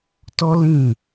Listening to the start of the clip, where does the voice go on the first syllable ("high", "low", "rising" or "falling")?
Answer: high